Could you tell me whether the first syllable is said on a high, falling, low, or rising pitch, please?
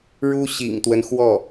high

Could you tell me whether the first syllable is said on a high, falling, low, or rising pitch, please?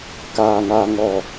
low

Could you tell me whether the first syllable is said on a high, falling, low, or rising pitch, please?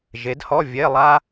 rising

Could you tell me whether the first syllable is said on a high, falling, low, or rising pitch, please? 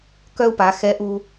high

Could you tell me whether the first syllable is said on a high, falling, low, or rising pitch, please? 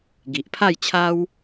low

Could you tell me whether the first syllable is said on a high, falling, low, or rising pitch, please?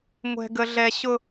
high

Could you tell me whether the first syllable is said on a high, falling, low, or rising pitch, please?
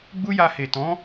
high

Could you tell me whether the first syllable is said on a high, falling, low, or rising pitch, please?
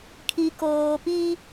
low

